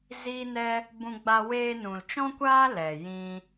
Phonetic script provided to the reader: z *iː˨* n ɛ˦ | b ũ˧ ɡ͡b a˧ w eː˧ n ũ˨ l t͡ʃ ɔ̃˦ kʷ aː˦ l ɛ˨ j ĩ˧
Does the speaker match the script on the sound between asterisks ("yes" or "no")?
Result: no